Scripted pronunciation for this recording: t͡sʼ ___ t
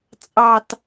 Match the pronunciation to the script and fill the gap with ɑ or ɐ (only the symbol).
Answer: ɑ